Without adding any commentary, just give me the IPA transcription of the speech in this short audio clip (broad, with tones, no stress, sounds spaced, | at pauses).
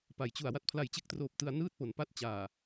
p a˩˦ j t͡ɕ u˨˩ a̯ w a˦˥ t̚ pʰ l a˨˩ j t͡ɕ e˦˥ k̚ t r oː˨˩ p̚ t ɯ˧ a̯ n ɯː˥˩ t̚ p o˩˦ n p a˦˥ t̚ t͡ɕ aː˨˩